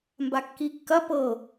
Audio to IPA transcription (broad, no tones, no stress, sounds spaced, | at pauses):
m b a kː i kː ɐ p ɤ